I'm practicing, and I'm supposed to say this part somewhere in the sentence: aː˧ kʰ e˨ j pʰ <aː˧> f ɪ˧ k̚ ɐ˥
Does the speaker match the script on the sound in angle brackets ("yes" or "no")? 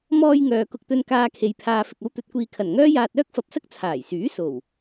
yes